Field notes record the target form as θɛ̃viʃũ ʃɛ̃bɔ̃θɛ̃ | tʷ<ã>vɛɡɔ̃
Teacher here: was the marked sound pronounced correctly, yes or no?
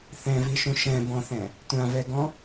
yes